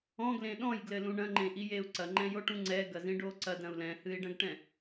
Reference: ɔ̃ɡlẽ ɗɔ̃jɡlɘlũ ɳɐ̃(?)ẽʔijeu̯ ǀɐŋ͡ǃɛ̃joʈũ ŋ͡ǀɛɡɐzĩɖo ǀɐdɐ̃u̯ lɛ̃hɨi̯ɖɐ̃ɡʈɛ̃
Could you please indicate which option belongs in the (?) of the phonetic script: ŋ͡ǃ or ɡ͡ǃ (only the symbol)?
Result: ŋ͡ǃ